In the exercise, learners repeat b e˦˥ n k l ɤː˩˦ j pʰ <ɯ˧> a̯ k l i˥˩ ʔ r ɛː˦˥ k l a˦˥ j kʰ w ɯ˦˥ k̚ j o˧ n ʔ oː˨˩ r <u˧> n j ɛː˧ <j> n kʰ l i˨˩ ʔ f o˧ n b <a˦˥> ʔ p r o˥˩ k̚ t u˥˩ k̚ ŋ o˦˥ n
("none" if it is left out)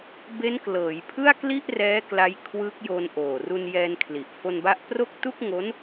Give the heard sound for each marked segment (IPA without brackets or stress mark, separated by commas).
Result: ɯ˥˩, u˧, none, a˦˥